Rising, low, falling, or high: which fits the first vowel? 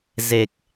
low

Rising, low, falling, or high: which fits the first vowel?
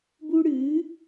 high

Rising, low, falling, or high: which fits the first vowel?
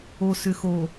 low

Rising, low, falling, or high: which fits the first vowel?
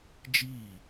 falling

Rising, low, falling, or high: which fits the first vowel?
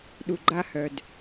low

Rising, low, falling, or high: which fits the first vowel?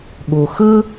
low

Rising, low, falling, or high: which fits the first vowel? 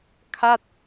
falling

